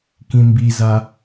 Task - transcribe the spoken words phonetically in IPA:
k ĩ m b i z a

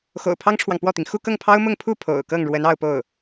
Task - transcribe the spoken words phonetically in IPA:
x o̰˨˩ ʊ̯ pʰ ɑ˥ ŋ ʈ͡ʂʰ w ɑ˨ ŋ p w ɔ˥˩ t̪ i˩ ŋ x u˥˧ k ɤ˥˩ ŋ pʰ ɑ˥ ʊ̯ m ʊ˥˧ ŋ pʰ u˥˩ pʰ o̰˨˩ ʊ̯ k ɤ˥˩ ŋ ɻ w ə˧˥ n ɑ˥˧ ʊ̯ p o˥˩ ʊ̯

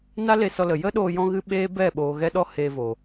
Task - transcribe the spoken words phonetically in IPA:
n a˦ l e˧ s ɔ˧ l ə˨ j ə˦ ɗ oː˧ j ɔ̃˦ ɣ ɨ˦ ɓ eː˦ b ɛ˦˨ ɓ oː˨ ɣ ɛ˧ ɗ ɔ˦ h e˧ v o˨

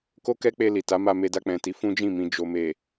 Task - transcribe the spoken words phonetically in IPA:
k o˦ k ɛ˦ k͡p e˧ l i˨ t a˨˦ m a˧ m e˧ d a˧ k͡p ɛ̃˨ t i˨˦ f ũ˦ d͡ʒ ĩ˦˨ m ĩ˨ d͡ʒ o˨ m e˨

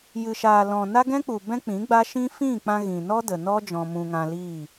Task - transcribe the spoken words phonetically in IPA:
j ɨ˨ ʃ aː˨ l ɔ̃˨ n a˦ ɡ ɛ̃˦ k͡p u˨ b ɛ̃˦ k͡p ĩ˨˦ ɡ͡b a˦ ʃ ĩ˦ f ĩ˦˨ k͡p ã˧ ɣ ĩ˨ n ɔ˦ d ə˨ n ɔ˦ d͡ʒ ɔ̃˧ m ũ˧ ŋ ã˧ l iː˦˨

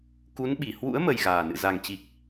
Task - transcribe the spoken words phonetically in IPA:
k u˨˦ n ɓ i˧˩ h w ṵ˧˥ ə̯ m ə˨˩ j ɣ aː˨˩ n ɨ̰˧˨ z a˨˩ ŋ t͡ɕ i˨˩ k̚

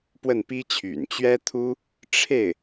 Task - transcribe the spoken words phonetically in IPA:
p w ə˥˩ n p i˥ t͡ɕʰ y̰˨˩ n t͡ɕ ɥ ɛ˥ t̪ʰ u˥ | ʈ͡ʂʰ e˥˩ ɪ̯

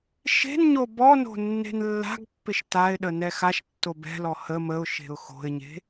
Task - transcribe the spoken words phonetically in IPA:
ʃ e̤ n ɲ o b ɔ n o̤ nː e̤ n lː a̤ ɡ pː ɪ ʃ t a ɪ̯ ɗ ə n ɛ x a ʃ tː o b ɛ̤ l ɔ h ə m ə ʊ̯ ʃ e̤ ʊ̯ x o̤ ɪ̯ ɲ e̤

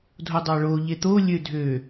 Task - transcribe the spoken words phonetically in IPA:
dʱ o dˤ ɑ ɭ o ʎ e t̪ o lʲ ø dʱ ø

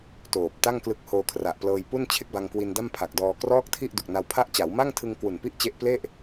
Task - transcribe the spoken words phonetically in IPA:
t oː˨˩ p̚ t a˥˩ ŋ k l ɯ˦˥ k̚ h oː˧ kʰ r a˨˩ ʔ p l ɤː˧ j p u˥˩ n t͡ɕʰ e˥˩ k̚ b a˧ ŋ k w i˧ n d a˥˩ m pʰ a˨˩ k̚ d ɔː˧ k r ɔː˥˩ k̚ tʰ i˥˩ ʔ d u˨˩ k̚ n a˧ w pʰ a˦˥ ʔ t͡ɕ a˩˦ w m a˥˩ ŋ tʰ ɯ˧ ŋ k w u˨˩ n p i˥˩ ʔ t͡ɕ e˦˥ ʔ p l e˥˩ ʔ

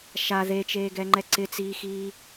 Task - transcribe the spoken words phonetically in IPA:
ʃ a ð e t͡ʃ eː ɡ ɛ ŋ͡ǃ ɛ ǀ ɪ t͡s iː x iː

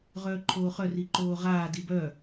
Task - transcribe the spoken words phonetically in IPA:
ʁ œː ǃʰ oː χ œ r i ǃ oː ʁ aː d i b œ

